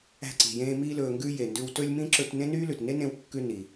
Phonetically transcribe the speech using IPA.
æ̤˧ ǀ i̤˩ j ẽː˧ m iː˧ l ɵː˩ ŋ ɡ ʉ˧ j e˩ n d ʉ˧ w t ɵ˥ lʲ m ĩ˥ ǁ ɵ˧ t n ẽ˥ n yː˥ l ʉ˩ t n e˥ n ẽ˧ w kː ʉ˧ n i˩

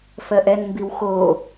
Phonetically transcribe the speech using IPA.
f ɜ ʔ ɛ n m b i w x o

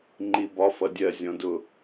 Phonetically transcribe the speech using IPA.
ŋ͡ǃ i b ɒ f ʌ dʲ ɜ zʲ ɔ̃ d ʊ

